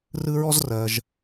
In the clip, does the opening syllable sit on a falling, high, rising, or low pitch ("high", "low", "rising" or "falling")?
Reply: high